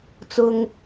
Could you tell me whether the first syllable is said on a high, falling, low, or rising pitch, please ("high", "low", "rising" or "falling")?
high